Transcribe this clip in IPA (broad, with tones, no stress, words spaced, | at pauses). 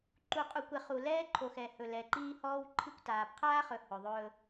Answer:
ǃu˨qʼu˨kʷɛ˨χ u˨lɛː˦ǃʰo˨xɛ˨ hɵ˨lɛ˨ǃiː˦ hɔː˦wǃʰi˦kʷtaː˨p qʰaː˦χɵ˨ hɵ˨ðˤɵː˦